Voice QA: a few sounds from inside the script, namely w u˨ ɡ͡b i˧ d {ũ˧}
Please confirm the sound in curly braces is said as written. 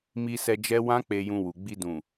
no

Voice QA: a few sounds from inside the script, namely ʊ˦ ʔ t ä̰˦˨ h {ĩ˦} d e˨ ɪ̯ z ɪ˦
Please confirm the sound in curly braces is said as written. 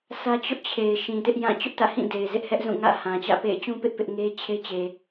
no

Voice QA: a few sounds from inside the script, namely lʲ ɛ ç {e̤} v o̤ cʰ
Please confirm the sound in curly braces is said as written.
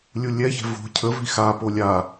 no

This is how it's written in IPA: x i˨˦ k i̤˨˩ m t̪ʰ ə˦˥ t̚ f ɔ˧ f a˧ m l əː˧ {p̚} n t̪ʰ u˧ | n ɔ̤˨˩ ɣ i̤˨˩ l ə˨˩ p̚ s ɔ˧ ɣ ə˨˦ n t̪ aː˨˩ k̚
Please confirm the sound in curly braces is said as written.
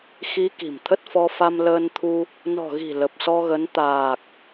no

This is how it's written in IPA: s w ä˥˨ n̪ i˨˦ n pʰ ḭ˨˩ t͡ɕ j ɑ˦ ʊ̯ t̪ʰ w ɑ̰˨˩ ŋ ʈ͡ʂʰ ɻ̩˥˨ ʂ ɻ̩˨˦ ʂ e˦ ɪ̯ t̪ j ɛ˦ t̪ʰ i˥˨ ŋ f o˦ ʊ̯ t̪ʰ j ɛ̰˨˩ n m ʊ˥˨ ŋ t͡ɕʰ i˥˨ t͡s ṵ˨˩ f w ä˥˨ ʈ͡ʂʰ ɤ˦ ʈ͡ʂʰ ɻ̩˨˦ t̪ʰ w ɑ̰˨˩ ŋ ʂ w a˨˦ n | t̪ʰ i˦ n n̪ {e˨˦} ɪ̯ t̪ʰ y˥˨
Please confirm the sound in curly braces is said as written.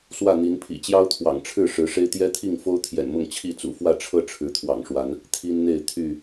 no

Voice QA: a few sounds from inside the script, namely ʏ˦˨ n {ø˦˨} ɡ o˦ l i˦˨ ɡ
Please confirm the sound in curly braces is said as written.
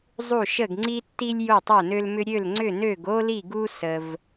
yes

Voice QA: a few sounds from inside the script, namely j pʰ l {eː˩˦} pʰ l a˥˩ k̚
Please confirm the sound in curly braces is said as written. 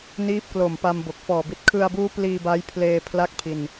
no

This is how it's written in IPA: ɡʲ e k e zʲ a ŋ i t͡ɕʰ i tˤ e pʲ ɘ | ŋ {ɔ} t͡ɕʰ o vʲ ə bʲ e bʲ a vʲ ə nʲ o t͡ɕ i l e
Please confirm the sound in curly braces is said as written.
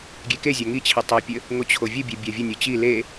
no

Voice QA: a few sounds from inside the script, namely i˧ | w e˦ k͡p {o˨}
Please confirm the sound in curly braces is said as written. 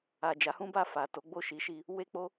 no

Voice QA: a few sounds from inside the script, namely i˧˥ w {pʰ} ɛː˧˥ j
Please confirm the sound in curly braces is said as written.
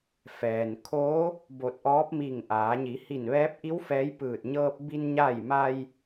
no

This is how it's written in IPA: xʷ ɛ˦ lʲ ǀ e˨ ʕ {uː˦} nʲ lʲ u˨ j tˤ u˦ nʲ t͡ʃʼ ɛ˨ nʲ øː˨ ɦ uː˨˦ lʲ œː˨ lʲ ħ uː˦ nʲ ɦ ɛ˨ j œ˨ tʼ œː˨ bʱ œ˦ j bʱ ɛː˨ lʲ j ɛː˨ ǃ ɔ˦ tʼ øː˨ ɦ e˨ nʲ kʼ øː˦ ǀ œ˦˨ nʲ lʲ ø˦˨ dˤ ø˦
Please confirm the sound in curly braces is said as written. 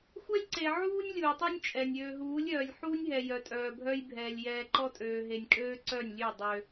yes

